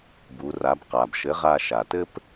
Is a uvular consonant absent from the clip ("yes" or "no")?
no